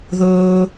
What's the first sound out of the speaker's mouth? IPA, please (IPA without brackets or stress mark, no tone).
ð